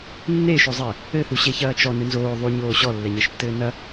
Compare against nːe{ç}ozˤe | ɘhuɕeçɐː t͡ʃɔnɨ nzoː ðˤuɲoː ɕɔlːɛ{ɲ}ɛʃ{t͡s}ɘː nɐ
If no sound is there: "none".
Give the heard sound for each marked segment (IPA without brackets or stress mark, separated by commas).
ʃ, ɲ, tː